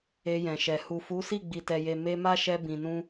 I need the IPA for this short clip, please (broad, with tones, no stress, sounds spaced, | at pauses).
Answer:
e˧ j ɛ̃˨ ʃ ɛ˨ h u˨ f u˨˦ s i˦˨ ɡ͡b i˨ t ɛ˨ j e˨ m e˧ m a˦ ʃ ɛ˧ b ĩ˨ n ũ˧